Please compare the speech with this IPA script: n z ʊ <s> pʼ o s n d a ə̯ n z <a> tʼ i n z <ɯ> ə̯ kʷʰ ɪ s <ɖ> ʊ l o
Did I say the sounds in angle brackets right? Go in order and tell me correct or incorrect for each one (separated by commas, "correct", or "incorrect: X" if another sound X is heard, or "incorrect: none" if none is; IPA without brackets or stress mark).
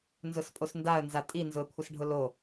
correct, correct, incorrect: ʊ, incorrect: ɖʱ